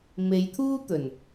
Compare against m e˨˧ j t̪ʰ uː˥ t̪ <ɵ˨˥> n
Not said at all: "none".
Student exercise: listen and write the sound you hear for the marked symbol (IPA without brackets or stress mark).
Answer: ɵ˨˩